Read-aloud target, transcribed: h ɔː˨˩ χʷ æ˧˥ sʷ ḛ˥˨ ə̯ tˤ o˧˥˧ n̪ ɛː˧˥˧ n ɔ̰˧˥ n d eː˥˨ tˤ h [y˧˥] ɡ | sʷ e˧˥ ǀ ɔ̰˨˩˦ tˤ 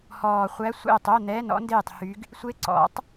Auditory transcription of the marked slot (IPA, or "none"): y˧˥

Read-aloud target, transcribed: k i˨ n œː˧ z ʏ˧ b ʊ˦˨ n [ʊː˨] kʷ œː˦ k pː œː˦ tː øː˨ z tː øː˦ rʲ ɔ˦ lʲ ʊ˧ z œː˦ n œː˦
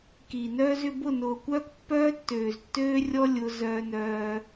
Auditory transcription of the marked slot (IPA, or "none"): ʊː˨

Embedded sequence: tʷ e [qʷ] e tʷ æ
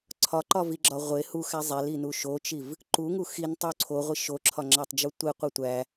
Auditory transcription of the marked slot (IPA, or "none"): qʷ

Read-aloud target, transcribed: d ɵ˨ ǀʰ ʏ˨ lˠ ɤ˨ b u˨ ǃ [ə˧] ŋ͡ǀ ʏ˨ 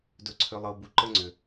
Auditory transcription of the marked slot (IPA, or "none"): ə˧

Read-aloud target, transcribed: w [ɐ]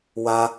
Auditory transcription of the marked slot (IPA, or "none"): a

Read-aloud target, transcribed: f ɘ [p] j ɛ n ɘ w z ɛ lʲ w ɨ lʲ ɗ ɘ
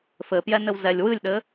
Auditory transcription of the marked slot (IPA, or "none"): p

